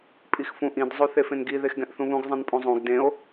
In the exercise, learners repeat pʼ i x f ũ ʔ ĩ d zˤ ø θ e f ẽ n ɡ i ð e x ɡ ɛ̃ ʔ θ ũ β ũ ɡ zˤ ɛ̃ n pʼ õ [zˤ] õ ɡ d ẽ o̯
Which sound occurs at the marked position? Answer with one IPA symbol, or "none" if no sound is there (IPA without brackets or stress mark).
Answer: zˤ